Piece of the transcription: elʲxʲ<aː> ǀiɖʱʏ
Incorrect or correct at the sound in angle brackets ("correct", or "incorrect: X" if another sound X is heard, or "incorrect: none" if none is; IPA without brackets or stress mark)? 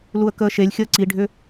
incorrect: əː